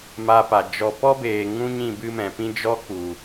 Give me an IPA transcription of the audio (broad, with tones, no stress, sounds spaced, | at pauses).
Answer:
m a˧ p a˨ d͡ʒ ɔ˨ p ɔ˦ b eː˨ ŋ ũ˧ ɲ ĩ˦˨ b ɨ˦ m ɛ̃˨ p ĩ˦ d͡ʒ ɔ˦ k u˨